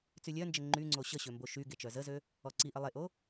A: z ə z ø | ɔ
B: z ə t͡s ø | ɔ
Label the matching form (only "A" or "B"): A